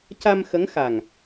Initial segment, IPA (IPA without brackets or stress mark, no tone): c